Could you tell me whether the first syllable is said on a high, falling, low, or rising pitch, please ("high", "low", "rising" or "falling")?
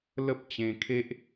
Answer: high